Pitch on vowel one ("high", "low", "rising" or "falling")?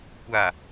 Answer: low